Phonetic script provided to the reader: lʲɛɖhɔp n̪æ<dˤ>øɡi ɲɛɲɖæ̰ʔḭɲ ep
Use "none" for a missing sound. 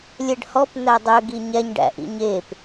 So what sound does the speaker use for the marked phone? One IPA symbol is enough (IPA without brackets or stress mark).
dˤ